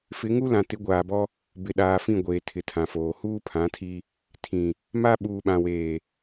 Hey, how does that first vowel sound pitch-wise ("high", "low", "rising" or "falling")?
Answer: rising